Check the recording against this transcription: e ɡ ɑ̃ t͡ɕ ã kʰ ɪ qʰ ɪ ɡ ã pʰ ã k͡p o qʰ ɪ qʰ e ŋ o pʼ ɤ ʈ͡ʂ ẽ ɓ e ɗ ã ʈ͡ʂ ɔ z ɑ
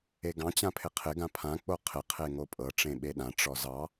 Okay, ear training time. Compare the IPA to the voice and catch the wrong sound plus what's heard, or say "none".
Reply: kʰ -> pʰ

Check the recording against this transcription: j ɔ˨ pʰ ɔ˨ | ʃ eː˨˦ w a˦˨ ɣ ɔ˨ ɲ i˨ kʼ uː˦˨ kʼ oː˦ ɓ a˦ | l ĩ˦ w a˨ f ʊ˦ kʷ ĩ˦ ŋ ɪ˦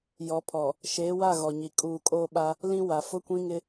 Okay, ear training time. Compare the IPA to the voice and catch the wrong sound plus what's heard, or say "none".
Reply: none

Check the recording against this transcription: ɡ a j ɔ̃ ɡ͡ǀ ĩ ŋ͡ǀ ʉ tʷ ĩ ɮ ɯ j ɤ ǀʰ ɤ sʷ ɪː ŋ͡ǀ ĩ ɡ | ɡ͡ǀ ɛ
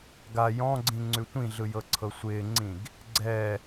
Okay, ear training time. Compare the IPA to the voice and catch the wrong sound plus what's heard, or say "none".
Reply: none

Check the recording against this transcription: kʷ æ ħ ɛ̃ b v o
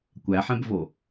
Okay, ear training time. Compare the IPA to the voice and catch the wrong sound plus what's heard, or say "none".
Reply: none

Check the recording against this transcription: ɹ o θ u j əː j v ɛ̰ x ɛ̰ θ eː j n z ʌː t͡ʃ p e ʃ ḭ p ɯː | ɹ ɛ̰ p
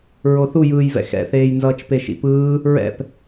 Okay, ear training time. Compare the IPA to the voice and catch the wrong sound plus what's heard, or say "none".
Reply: əː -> ɯː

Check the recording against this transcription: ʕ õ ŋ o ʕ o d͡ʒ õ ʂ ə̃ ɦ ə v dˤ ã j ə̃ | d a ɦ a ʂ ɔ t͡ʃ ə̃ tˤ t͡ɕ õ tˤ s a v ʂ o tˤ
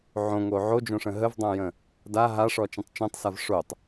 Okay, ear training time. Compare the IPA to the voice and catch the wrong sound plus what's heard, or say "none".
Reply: t͡ɕ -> t͡ʃ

